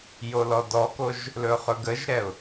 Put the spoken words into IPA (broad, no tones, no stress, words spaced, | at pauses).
jolɔdɔkoʒ | lɵχɵɡəʒɾɛʊ̯